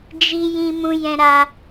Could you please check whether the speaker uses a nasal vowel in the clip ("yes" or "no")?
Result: yes